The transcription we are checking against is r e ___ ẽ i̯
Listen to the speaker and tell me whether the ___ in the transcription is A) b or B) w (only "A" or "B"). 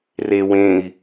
B